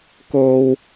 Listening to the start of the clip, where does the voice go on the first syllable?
low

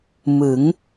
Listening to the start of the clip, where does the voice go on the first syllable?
rising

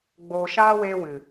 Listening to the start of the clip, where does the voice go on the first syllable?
low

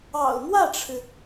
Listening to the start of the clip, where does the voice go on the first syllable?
low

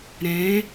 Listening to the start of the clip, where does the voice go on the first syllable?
rising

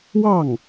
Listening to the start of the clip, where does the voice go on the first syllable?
falling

